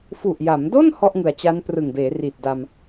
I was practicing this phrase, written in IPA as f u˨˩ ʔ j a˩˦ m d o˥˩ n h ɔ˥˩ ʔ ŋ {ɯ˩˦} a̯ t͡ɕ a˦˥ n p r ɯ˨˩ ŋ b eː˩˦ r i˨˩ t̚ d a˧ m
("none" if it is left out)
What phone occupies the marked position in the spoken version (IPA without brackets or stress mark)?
ɯ˩˦